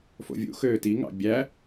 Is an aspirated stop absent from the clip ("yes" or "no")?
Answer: yes